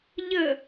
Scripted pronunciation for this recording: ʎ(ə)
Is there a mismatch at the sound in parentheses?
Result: no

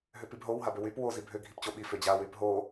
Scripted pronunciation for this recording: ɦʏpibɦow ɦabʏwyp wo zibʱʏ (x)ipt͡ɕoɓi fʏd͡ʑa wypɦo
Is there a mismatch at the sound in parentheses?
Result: yes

